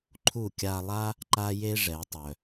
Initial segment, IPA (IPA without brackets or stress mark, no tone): ǃʰ